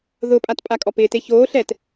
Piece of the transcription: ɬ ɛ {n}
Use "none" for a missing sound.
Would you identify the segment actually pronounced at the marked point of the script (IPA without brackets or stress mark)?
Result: t